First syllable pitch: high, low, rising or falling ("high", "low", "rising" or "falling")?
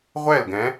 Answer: falling